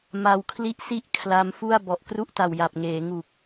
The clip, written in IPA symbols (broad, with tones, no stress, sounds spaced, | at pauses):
m a˧ w kʰ l i˥˩ ʔ s i˥˩ ʔ kʰ l a˦˥ m f u˥˩ a̯ b ɔ˨˩ ʔ k r u˥˩ ʔ t a˨˩ w j a˨˩ p̚ ŋ eː˩˦ ŋ u˨˩ k̚